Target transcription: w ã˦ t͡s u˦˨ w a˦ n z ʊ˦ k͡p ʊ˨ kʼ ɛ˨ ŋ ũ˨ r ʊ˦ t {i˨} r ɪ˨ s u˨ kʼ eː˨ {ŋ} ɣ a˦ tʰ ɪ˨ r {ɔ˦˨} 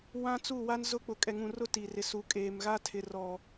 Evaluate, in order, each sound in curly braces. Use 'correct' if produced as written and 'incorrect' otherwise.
correct, incorrect: m, incorrect: ɔ˨

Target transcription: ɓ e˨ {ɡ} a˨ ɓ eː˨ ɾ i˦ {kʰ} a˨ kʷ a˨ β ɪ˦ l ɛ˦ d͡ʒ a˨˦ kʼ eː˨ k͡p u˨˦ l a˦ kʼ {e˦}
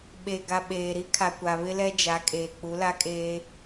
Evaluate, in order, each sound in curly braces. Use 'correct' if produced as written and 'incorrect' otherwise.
correct, correct, incorrect: eː˦

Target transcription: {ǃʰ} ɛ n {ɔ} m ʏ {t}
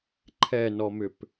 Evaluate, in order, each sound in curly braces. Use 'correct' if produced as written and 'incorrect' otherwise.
correct, correct, incorrect: p

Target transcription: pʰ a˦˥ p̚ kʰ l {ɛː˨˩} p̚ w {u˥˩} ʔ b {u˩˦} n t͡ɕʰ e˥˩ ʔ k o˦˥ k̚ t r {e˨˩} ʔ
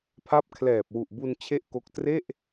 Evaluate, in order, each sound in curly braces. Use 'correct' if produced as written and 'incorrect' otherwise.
correct, incorrect: u˨˩, incorrect: u˧, incorrect: e˥˩

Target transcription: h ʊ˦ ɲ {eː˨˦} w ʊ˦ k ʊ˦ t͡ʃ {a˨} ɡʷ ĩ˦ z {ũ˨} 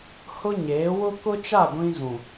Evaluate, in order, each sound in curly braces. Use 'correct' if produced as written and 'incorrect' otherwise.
correct, incorrect: a˦˨, correct

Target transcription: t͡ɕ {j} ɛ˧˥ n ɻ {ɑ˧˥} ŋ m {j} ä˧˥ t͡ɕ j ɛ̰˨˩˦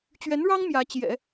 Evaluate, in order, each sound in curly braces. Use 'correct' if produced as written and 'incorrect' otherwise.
incorrect: ɥ, incorrect: ɑ˥, correct

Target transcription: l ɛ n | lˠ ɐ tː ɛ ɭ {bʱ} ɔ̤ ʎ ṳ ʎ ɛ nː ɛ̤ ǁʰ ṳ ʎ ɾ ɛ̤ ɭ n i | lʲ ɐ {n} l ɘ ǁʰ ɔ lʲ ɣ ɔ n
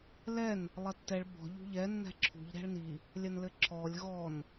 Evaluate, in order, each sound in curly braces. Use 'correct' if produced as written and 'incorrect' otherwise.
incorrect: b, correct

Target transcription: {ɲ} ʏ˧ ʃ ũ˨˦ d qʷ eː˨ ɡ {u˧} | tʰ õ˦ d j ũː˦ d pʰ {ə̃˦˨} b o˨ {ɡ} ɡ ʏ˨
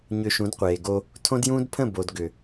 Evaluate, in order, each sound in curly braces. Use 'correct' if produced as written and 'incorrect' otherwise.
correct, incorrect: o˧, correct, incorrect: d

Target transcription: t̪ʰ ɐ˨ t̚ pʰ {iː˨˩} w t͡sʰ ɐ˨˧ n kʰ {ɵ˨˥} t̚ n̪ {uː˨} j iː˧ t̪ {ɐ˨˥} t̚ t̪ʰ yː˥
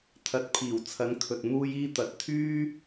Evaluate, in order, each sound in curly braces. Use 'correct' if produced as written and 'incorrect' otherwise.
correct, incorrect: ɵ˨, incorrect: uː˧, correct

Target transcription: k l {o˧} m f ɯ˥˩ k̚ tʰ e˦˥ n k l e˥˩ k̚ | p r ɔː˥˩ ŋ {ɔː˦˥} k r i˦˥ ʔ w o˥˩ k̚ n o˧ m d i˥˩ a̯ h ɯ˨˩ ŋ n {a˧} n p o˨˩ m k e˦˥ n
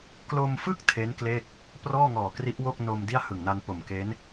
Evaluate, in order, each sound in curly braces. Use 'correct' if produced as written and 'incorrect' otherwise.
correct, incorrect: ɔː˨˩, correct

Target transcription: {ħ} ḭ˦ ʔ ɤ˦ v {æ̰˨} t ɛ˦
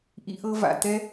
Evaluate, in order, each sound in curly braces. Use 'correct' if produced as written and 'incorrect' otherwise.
incorrect: ʔ, incorrect: a̰˨

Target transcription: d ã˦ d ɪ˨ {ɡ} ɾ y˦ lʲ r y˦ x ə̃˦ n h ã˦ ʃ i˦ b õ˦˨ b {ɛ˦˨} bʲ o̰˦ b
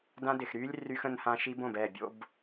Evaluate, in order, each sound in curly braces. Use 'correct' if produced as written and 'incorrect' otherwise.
incorrect: x, correct

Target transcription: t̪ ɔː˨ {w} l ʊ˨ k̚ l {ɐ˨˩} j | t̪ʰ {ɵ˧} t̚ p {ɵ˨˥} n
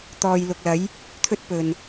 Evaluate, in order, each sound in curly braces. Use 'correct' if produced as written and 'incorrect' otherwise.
incorrect: j, incorrect: ɐ˨˥, incorrect: ɵ˥, incorrect: ɵ˨

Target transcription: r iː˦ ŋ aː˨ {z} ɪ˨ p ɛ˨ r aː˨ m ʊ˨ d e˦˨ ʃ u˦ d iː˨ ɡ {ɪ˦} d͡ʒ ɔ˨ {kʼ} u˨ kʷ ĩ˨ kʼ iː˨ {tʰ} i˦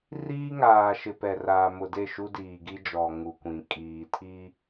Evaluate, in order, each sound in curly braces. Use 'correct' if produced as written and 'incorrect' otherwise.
incorrect: ʃ, incorrect: i˦, incorrect: ŋ, correct

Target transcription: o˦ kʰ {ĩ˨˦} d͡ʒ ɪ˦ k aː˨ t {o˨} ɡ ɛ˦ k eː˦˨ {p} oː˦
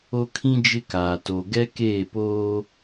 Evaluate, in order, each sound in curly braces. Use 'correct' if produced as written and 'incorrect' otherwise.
incorrect: ĩ˦, correct, correct

